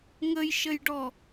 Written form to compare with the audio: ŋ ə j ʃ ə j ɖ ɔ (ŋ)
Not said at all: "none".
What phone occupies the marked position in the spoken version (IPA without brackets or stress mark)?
none